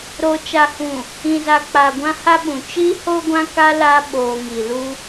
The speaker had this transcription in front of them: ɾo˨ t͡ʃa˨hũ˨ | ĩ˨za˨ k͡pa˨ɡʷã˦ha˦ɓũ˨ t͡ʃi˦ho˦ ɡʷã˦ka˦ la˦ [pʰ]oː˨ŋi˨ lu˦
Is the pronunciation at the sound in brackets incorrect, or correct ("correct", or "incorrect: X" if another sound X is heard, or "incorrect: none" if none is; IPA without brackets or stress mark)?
incorrect: ɓ